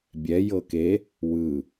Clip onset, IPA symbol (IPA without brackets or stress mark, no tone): bʲ